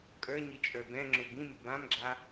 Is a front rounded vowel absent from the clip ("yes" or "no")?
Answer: yes